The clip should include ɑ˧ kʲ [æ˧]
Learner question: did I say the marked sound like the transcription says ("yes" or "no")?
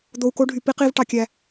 yes